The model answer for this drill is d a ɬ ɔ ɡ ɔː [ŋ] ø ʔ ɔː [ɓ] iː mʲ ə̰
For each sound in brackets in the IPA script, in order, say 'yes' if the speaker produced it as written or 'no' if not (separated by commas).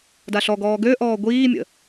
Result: no, no